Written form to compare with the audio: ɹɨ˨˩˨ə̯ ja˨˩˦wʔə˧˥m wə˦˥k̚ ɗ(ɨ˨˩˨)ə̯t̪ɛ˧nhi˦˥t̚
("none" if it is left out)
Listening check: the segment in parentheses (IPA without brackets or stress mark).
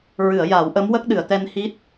ɨ˨˩˨